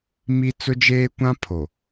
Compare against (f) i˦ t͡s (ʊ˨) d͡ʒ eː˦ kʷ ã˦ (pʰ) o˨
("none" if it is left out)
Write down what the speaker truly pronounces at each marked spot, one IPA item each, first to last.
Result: m, ʊ˦, pʰ

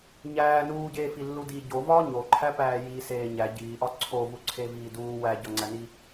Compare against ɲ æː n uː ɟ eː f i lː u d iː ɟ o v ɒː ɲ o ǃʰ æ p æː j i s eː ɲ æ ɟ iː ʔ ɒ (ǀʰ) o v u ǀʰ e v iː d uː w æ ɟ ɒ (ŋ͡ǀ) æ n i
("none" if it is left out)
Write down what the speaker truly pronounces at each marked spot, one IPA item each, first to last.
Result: ǀʰ, ŋ͡ǀ

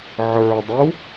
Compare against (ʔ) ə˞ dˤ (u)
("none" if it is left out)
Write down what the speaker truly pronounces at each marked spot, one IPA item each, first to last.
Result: ʕ, u

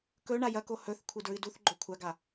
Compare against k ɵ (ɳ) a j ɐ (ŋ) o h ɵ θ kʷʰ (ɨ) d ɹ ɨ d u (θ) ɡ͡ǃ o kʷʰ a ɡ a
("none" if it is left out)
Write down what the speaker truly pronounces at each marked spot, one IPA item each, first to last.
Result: ɳ, k, ɨ, θ

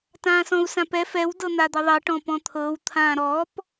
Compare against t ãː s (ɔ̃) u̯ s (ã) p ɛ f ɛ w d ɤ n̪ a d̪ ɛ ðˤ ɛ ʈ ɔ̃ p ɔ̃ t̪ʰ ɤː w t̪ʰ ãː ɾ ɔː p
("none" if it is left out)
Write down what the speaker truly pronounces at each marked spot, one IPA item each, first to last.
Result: ɔ̃, ã

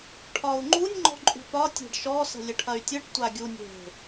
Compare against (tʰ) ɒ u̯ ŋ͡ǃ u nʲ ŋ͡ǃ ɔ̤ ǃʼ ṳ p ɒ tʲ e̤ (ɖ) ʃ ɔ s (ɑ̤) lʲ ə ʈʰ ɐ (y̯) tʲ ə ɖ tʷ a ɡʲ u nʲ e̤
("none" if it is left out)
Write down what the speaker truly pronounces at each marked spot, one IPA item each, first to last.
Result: ʈʰ, ɖ, ə̤, y̯

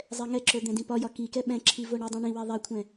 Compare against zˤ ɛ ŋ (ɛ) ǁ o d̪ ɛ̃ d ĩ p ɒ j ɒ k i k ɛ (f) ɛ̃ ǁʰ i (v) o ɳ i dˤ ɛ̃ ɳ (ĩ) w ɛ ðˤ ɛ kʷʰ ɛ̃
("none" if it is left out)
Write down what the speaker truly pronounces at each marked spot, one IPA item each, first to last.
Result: ɛ, ɓ, v, ĩ

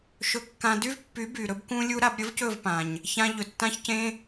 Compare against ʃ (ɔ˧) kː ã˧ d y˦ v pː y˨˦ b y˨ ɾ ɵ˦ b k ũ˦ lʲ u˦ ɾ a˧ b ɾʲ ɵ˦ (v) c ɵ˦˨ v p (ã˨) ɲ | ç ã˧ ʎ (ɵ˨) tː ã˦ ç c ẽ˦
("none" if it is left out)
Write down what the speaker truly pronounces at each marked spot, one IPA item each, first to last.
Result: ɵ˧, v, ã˨, ɵ˨

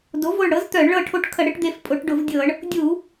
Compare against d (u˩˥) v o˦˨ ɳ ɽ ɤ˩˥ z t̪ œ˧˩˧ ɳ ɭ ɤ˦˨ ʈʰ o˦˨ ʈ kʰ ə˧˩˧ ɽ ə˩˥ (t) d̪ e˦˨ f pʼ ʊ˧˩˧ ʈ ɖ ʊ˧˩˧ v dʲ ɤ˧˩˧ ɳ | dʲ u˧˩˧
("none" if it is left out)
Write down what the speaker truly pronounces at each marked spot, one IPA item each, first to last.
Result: o˩˥, ʈ

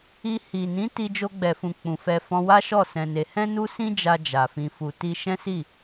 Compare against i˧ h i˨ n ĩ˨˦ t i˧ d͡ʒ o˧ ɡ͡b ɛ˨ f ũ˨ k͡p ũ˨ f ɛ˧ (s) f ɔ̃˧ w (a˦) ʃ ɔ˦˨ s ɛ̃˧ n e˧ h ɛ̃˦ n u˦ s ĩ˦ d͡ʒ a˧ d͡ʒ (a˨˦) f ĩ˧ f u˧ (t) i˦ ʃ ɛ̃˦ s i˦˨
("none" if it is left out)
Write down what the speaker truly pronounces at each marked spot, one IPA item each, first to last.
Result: none, a˦, a˨, t

